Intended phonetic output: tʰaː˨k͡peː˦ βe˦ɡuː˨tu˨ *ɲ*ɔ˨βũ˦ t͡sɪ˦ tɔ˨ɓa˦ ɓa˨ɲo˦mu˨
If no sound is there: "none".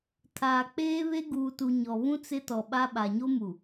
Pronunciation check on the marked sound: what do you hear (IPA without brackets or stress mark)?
ɲ